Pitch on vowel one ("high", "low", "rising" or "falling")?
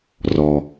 low